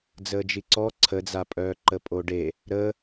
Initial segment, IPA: d͡z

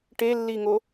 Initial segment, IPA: ʈ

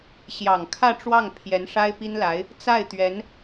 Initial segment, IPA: ɕ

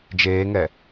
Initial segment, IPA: d͡ʒ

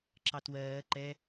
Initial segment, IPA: ǁ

